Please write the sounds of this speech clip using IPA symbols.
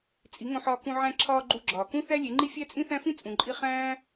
t͡sʼ i˨˦ ŋ õ˧ ħ ɒː˧ k ũ˧ ʕ æ̃˧ ǁʰ ɒː˧ ɡ͡ǃ u˧ ɡ͡ǁ ɒː˨ k ũ˦ θ æ˦ lʲ e˨˦ ŋ͡ǃ i˦ fʲ æ˦ t͡sʼ ĩ˦ θ æ̃˦ f ĩ˦ t͡sʼ ũ˨ ǃʼ i˧ χ æ̃ː˦

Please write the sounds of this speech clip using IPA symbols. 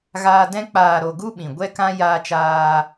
ɣ aː˧ d ɛ̃˧ k͡p aː˨ ɾ o˨ ɡ u˦ ɓ ĩ˨ ɡʷ ɛ˦ k ã˦ j aː˧ t͡ʃ aː˧

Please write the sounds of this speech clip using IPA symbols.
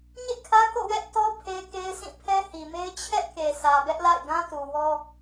ɲ ḛ˦˨ kʰ ä˦ k o̰˦˨ w ɛ˦ ʔ t ɔ˦ pʰ e˦ k e˦ ɪ̯ sʰ ĩ˦˨ pʰ ɛ˦ h i˨ m e˦ ɪ̯ t͡ɕʰ ɛ˦ ʔ k e˨ sʰ ä˨ b ɛ˦ ʔ l a̰˦˨ ɪ̯ ɡ ã˦ t u˨ w ɔ˦

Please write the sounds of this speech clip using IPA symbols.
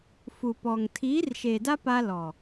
f u˨ p ɔ˨ ŋ tʰ iː˨˦ r ʃ eː˨ d a˦ p a˦ l ɔ˨

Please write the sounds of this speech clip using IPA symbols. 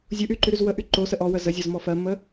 zʲ u ʔ y ǃ y ɾ y z w ə ʔ y ǃ o s ə ʔ ɔ w ə z ə zʲ ɔ z m ɔ f ɜ mː ə

